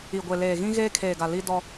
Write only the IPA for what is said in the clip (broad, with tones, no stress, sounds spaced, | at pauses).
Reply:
i˨ ɡʷ e˨ l eː˨ ɣ ĩ˦ ɣ eː˦ kʰ eː˨ ɡ a˨ l i˦ d ɔ˦